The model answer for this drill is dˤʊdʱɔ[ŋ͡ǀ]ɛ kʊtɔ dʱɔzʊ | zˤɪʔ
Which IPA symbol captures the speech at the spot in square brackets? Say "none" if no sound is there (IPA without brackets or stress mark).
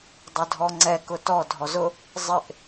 ŋ͡ǀ